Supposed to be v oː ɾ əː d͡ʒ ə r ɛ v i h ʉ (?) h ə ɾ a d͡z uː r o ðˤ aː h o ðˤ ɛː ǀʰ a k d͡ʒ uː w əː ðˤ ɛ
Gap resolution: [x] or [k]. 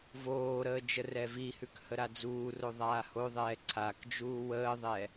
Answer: k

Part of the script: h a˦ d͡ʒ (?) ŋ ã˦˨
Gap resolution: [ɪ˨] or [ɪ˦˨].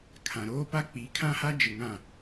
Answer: ɪ˨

